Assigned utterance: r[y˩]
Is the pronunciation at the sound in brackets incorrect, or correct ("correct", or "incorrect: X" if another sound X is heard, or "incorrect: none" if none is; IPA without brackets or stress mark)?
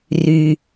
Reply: correct